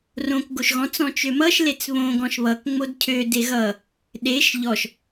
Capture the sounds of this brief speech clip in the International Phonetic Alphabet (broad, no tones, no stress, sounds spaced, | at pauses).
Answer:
r õ k ɡ o ʃ ɣ ɔ̃ t͡s ɔ̃ t͡ʃ ø m ʌ ʃ l e t͡s β õ ɡ ɔ̃ ʃ β ʌ k ŋ͡m o d cʰ ø d e ɣ ʌ | ɗ e ʃ ʎ ɔ ʃ